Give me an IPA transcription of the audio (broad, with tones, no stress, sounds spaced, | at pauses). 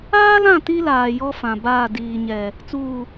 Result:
aː˦ l ã˦˨ t i˦ l aː˨ j ɔ˦ f ã˨ b aː˦˨ d iː˨ ɲ ɛ˨ | t͡s uː˨